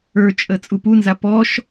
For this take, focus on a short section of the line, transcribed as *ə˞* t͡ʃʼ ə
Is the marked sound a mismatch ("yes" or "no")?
no